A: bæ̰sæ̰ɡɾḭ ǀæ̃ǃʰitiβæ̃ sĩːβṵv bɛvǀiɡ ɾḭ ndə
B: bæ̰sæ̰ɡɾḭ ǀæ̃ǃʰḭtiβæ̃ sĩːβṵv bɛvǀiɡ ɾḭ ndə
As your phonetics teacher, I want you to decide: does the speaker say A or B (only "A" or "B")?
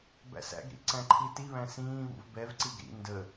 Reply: A